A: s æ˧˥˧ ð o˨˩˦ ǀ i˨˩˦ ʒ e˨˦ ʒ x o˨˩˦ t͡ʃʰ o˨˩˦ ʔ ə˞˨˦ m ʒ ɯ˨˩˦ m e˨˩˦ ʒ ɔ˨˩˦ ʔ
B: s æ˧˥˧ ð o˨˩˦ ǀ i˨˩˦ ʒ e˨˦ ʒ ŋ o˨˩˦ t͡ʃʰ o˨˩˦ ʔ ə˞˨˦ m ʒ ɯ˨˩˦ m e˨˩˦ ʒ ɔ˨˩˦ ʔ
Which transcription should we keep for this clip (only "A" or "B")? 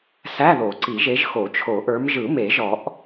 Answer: A